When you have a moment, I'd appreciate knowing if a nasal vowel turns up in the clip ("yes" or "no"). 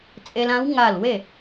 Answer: yes